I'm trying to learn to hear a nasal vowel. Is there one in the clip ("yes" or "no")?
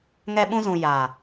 yes